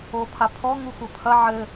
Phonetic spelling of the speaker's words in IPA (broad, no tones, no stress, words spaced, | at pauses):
opʰapʰɔ ŋuxʷɤpʰɐ ʕɘ